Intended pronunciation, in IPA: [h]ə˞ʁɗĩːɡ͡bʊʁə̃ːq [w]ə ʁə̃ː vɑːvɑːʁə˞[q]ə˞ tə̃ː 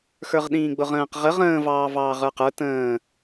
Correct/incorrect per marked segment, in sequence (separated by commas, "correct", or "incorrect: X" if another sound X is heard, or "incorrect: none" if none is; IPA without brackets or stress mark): incorrect: x, incorrect: ʁ, correct